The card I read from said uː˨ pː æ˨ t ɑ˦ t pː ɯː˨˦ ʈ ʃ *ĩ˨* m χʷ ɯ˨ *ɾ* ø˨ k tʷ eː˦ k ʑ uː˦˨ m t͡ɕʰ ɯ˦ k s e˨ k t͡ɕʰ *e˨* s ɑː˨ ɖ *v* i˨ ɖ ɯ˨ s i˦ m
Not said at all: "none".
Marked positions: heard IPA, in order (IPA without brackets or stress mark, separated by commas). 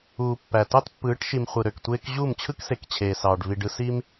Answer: i˨, ɾ, eː˨, v